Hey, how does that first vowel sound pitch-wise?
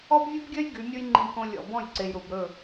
high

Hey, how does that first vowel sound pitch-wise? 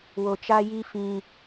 low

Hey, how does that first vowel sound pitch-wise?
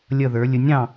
falling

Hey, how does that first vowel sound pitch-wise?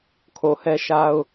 low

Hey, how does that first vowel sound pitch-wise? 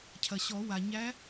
low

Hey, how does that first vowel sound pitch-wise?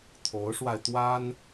rising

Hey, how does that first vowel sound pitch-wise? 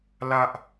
high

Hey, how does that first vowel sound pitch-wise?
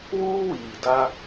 high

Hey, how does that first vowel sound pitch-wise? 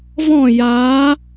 falling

